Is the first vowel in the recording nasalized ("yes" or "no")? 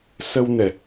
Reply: no